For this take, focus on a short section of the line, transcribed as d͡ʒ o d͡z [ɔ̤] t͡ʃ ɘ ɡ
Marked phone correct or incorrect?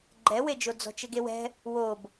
correct